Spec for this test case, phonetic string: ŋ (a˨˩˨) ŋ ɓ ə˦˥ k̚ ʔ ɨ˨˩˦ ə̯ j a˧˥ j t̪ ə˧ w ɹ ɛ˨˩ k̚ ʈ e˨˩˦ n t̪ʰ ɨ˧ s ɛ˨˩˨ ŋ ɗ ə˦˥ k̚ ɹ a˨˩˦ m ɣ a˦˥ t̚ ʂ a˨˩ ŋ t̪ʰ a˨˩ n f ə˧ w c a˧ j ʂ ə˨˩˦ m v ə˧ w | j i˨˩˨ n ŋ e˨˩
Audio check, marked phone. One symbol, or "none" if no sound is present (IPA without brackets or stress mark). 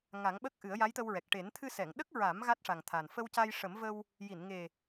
a˨˩˦